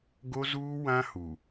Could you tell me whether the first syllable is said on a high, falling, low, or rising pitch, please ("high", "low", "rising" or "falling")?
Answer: high